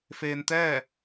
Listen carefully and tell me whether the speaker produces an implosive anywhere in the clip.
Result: no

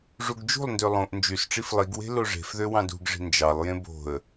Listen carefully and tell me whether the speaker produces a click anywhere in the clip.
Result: no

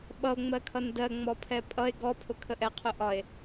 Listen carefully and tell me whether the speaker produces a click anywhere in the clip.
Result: no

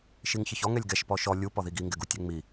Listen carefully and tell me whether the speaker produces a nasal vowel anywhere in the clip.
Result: no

